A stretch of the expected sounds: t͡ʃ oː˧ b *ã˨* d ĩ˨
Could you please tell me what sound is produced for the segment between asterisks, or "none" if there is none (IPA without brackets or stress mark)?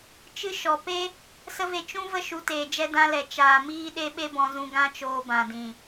ã˨